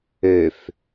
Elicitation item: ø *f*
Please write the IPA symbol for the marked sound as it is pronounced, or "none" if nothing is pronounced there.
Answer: f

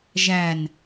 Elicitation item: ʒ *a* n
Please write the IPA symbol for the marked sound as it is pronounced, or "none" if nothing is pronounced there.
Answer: æ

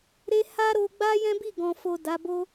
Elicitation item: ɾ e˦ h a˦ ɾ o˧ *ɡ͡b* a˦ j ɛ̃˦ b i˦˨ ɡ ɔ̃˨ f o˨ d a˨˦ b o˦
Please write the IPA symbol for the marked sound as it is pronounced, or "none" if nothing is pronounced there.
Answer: ɡ͡b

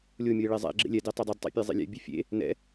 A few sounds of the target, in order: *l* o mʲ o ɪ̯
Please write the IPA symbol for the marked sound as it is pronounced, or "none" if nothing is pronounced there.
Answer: lʲ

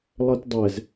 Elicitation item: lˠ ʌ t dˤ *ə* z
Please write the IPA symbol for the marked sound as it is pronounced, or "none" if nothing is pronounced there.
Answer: ɛ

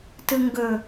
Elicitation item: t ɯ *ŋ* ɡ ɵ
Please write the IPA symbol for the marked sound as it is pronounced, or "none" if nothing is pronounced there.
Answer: ŋ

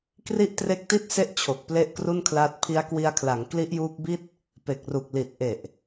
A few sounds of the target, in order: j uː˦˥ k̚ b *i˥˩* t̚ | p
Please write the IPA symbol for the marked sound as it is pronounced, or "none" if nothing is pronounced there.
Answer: i˥˩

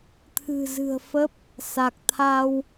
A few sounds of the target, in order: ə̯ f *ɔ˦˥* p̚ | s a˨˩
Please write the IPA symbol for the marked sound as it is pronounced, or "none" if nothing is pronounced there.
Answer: ə˦˥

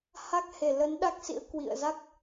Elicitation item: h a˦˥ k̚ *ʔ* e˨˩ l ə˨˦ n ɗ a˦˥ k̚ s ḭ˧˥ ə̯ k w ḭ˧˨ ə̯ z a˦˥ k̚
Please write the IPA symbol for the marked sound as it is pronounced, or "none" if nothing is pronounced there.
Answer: h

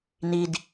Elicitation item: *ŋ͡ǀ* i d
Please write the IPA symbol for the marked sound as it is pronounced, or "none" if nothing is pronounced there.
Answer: n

